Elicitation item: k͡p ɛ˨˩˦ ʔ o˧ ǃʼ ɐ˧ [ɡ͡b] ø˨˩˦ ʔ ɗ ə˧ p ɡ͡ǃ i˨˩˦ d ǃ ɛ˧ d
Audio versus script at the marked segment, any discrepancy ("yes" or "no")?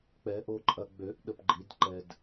no